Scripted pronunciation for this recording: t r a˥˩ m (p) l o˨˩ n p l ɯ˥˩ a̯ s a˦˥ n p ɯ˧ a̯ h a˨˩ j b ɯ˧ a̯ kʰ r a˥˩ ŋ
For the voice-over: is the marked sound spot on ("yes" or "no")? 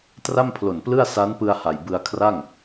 no